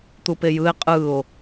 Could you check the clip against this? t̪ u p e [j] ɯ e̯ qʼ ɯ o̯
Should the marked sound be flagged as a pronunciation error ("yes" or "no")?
no